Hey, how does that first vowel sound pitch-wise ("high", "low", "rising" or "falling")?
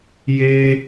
high